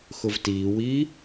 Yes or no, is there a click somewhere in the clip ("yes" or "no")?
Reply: no